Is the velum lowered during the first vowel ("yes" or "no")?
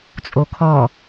no